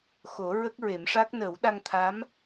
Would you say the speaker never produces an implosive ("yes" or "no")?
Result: no